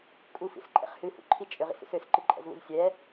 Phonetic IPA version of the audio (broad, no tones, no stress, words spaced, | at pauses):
kʼufḭsǃʼɛ̰χ hɨhṵǃʰi t͡ʃʼøʁḭsṵs øsǃɨǃʼɛ̰zβṵz sʲɛ